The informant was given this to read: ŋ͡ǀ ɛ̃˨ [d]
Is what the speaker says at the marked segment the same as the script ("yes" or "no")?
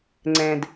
yes